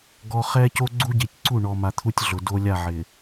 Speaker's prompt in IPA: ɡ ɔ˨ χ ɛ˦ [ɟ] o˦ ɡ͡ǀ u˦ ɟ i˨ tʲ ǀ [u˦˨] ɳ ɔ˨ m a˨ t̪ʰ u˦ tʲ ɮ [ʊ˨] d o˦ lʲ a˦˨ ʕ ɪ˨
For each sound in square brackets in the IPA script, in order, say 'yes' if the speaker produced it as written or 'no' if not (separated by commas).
no, yes, yes